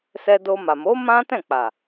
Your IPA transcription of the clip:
s ɛ˧ d o˧ m a˨ m o˨˦ m ã˦ t ɛ̃˦˨ k͡p a˨

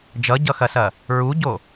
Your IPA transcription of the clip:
d͡ʒ ʌ ɟ ʌ x ɐ s ɐ | ɹ u ɟ o

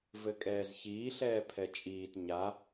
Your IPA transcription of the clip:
v ɘ kʼ ɛː z ç iː ɬ ɛː pʰ ɛ t͡ʃʼ iː t ɲ a

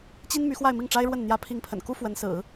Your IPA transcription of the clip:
t͡ɕ i˥ n m y˧˥ x w a˥˧ ɪ̯ m i˥˩ ŋ ʈ͡ʂ a˥ ɪ̯ ɻ w ə˥˩ n n̪ j ä˥ pʰ i˧˥ ŋ pʰ ə̰˨˩ n k u˥ f w ə˧˥ n s ɹ̩˨˩˦

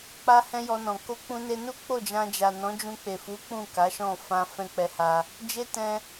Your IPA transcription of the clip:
k͡p a˦ h ɛ̃˦ j ɔ˧ n ɔ̃˨ k o˧ k͡p ũ˧ n e˧ n u˦ k͡p o˦˨ d͡ʒ ã˧ d͡ʒ a˨ n ɔ̃˨˦ d͡ʒ ũ˧ k͡p e˨ f u˨˦ k͡p ũ˦˨ k a˨˦ ʃ ɔ̃˦˨ f ã˧ f ɛ̃˦ k͡p ɛ˧ h a˧ | d͡ʒ e˦ t ɛ̃˧

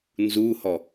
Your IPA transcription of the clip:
n z u h ɔ

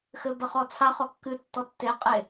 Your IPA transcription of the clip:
x ɘ b ɐ χ ɔ t͡sʰ a χ ɔ kː ɨ tː ɔ tː e qʼ e

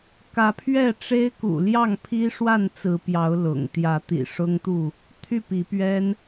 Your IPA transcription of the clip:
k ä˨˦ pʰ ɥ ɛ˥˨ ʈ͡ʂ e˦ ɪ̯ k ṵ˨˩ l j ɑ˥˨ ŋ pʰ i˦ ʂ w a˥˨ n t͡s ɹ̩˨˦ p j ɑ˨˦ ʊ̯ l ʊ̰˨˩ ŋ t̪ j ä˨˦ t̪ ḭ˨˩ ʂ ʊ˦ ŋ t̪ u˥˨ | t̪ʰ y˥˨ p i˨˦ p ɥ ɛ˦ n

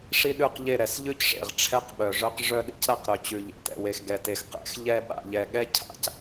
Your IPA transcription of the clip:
ʂ i˦ ɗ ʉ˦˨ q ʎ e˦˨ ɾ ɛ˨ s ʎ ʉ˦ c ʂ ḛ˨ ʁ ʈ͡ʂʰ ɛ˦ q ɓ œ˨ ʐ œ˦ q ʐ œ˦ ɗ ḭ˦ c ɾ a˦˨ q ɾ œ˨ t͡ɕ ʉ˨ ʎ ḛ˨ t ɛ̰˨ w e˨ x ɡ ɛ˨ t e˨ x q ɛ̰˨˦ x ʎ ɛ˦ ɓ a̰˨ ʎ ɛ˨ ɠ ɛ˦ cʰ a̰˦ c

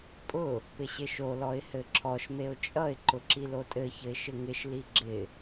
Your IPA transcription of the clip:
pʼ ʊ | p ɪ ɕ ɪ ʃ o l ɔ ɪ̯ h ɘ ǁʰ ɔ ʃ m e ʊ̯ t͡ʃʼ ʌ ɪ̯ ǃ ʊ ǁ i l o tʼ ɘ ç ɘ ɪ̯ ʃ ɘ ŋ ɪ ʃ l i ɡ͡ǁ ɪ

